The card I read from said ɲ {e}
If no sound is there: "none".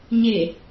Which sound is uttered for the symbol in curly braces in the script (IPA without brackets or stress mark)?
e